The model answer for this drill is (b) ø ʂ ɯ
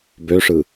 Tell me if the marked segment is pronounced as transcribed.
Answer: yes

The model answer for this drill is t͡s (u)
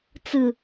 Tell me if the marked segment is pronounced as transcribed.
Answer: no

